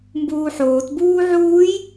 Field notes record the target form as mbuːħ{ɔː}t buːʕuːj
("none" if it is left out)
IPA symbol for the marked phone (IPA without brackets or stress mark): oː